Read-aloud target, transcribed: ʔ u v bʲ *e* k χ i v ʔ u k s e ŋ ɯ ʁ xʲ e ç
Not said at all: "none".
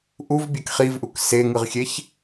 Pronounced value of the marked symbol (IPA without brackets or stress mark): e